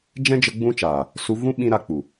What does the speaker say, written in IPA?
d͡ʒɛ̃˦d͡ʒə˧ ɡ͡bũ˦t͡ʃaː˨ | su˧vũ˦ ɓĩ˦ɾa˧k͡pu˨

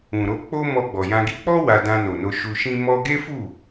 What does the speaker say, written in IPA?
ũ˨ɾo˧ k͡po˦ mɔ˧ɡ͡bɔ˨jã˧ɡi˦ k͡pɔ˦ wa˧dã˧no˨no˧ ʃu˧ʃĩ˦ mɔ˧ɡe˦fu˦˨

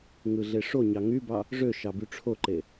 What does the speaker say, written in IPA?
ŋɯɮeʂoɲɑ ŋybɑ | ʐø ʃɑbyʈ͡ʂʰoǃe

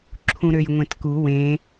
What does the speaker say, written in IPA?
ǁʰũɾøjŋʷẽtku wẽ

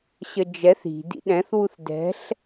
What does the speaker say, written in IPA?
ɕəd͡ʒɛθ i̤ dḭɗɛ̃θwuθ dɛ̤ɬ

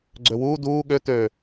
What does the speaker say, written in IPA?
ɡ͡ǀøwuː duː ɠø tø

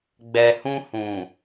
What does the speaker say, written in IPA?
ɡ͡bɛ˨hũ˧hũ˨

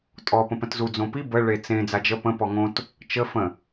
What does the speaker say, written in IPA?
tʼɔ pə̃pə̃tzu d͡zõpi bə ɭet͡sẽ d͡zad͡ʒə pə̃ pɔŋõt | t͡ʃə fə̃

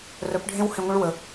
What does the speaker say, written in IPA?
rœ˨˦pɖʱẽ˦w hẽ˧ŋʷə̃˦ɭ wə˨˦

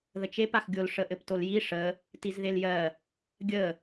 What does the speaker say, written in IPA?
ðət͡ʃep axɡʲol ʂəʔɘptolji ʂə | tizðeljɜ | ɡʲə

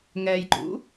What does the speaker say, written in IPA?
ŋɛjǃṵ

